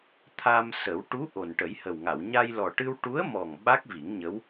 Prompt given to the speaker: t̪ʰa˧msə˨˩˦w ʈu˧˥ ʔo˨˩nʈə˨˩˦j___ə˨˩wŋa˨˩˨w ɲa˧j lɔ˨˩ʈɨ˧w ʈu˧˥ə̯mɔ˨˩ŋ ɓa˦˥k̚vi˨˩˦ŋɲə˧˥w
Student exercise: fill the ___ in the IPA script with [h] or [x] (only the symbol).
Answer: h